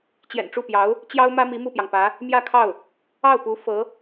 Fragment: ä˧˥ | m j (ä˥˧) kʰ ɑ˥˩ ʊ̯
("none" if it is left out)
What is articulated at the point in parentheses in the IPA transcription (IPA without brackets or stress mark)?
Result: ä˥˧